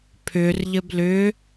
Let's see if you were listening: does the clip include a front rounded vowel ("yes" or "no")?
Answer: yes